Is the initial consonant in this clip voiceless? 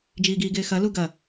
no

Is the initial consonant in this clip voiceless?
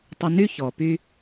yes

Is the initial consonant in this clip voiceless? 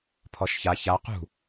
yes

